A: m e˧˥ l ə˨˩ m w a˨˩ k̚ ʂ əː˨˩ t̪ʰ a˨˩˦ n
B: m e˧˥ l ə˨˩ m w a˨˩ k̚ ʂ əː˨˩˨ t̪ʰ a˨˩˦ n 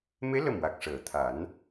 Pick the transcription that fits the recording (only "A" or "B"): B